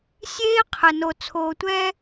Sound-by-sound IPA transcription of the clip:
sʲeː˦qʰə˨no˨ t͡sʰoː˨tʷɛː˦

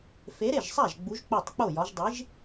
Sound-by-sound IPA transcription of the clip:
fe˨˥ɾe˥˩ʒsˤæ˥˩ʒ ɡ͡bu˨˥ʒk͡po˥˩tˤk͡po˥˩jɒ˨˥ʒ dˤi˨˥ʒ

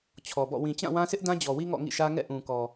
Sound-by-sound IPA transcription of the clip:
t͡ɕʰɔ˨bɔ̰˦˨ wĩ˨t͡ɕã˦˨wã˦sɪ˦ʔ dã˦d͡ʑɔ˨wi˦ ŋɔ̰˦˨ŋḭ˦˨ʃä˦ ŋɛ̰˦˨ʔũ˨kɔ˨

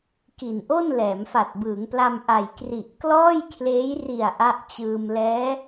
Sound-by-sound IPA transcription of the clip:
ki˨˩nʔo˥˩n lɛː˩˦mfa˨˩t̚bɯː˩˦ŋpla˧m ʔa˨˩jkri˨˩ʔklɔː˥˩jkʰleː˦˥j ri˨˩a̯ ʔa˦˥ʔt͡ɕɯː˧m lɛː˦˥

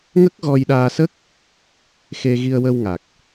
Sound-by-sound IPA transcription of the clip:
ŋə˦˥k̚ɣɔ˧jɗaː˧sə˦˥k̚ | xe˧ɣi˧ə̯wə˧wŋa˨˩k̚

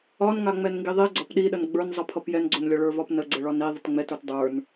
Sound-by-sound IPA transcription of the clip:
ɒnŋa ŋ͡mɛnŋɡiðˤiɡ͡ǀɒp ɗiɗən ɡ͡bə˞nzˤʌpʰʌp jɛnɡ͡ǀonlʲɒ ɭə˞vɒpnə ɡ͡ǀəɭɒni ðˤətŋ͡mɛtə˞t dˤə˞n

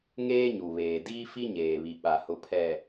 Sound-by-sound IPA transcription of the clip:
ŋeː˦ɲu˨βeː˨ diː˦fi˦ɲeː˨βi˨ ɓa˨hʊ˨pʰɛ˨

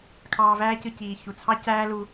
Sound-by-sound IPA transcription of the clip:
kʰɑː˧væː˦cɯ˧ ciː˨ çu˨t͡sʰɑ˦ cæː˦lu˧

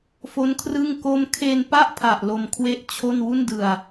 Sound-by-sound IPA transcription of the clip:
fo˦˥nkʰrɯ˥˩ŋ ko˦˥mkʰe˧npa˥˩ʔpʰa˨˩ʔ lo˧mkʰwe˥˩ʔt͡ɕʰo˥˩n wu˥˩ndɯ˧a̯

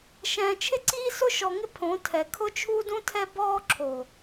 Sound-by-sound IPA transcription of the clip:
ʃɛ̃ː˨t͡ʃʰɪ˦ǀiː˦ sʊ˦ʃɔ˨ŋɪ˦ pʰõ˨˦tʰɛ˨ kʰʊ˦t͡ʃʰu˦dũ˦tʰɛ˦ bɔː˦ǁʰo˨

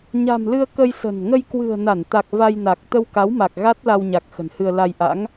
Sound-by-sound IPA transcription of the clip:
ɲa̤˨˩mlɨ˧ə̯ kə˧j sə̤˨˩n ŋə˧jkwɨ̤˨˩ə̯na˧˩nt̪a˨˩k̚ va˧jna˨˩k̚ t̪ə˧wka˨˦w ma˨˩k̚ɣa˦˥t̚la˧wɲa˨˩k̚ xə̤˨˩nhɨ˧ə̯la˧j ʔa̰˧˥ŋ

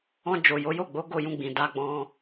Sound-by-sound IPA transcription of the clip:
ɔ̃˧ d͡ʒo˨ jo˨˦jo˦˨ɡ͡bo˨˦ ɡo˦˨jũ˧ɡ͡bĩ˨ da˧ɡ͡bɔ̃˧

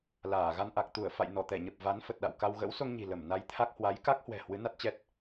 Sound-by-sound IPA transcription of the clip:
laː˧˩ ɣa˧nʔa˨˩k̚ t̪u˧˩ə̯fa̰˧˨j nɔ˧˩t̪ɛ˧˩ɲə˨˩p̚ va˨˦n fə˨˩t̚ɗa̰˧˨wka˧w ɣə̰˧˥wso˧ŋɲi̤˨˩ lə˧˩m na˧jt̪ʰa˦˥k̚ hwa˨˦j ka˦˥k̚hwɛ̤˨˩ hwɨ˨˦na˦˥t̚t͡ɕɛ˦˥t̚

